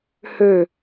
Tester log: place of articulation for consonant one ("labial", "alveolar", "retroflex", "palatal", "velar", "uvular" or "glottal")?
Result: glottal